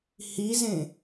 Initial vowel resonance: oral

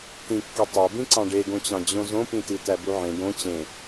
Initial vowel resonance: nasal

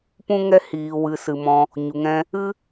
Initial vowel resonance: nasal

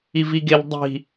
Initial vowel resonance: oral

